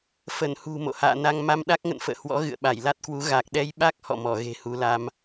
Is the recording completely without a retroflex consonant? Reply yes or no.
yes